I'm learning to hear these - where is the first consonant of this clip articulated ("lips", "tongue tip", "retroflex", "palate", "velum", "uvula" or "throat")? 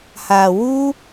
throat